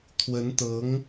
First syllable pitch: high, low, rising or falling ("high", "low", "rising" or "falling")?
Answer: rising